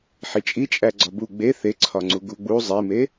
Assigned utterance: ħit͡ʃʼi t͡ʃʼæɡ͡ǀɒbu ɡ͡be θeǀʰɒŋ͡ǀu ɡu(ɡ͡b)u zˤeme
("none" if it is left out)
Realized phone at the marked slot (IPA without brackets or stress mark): ɡ͡b